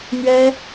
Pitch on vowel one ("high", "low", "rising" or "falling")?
high